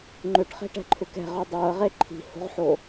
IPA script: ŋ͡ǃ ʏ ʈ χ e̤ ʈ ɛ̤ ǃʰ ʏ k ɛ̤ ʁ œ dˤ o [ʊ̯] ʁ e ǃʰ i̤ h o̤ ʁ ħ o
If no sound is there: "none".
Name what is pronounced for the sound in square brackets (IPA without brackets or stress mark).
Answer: ə̯